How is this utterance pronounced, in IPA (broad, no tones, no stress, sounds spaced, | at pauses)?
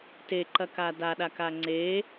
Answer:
t e ǃ ɐ k a d a ɗ a k a ŋ͡ǀ e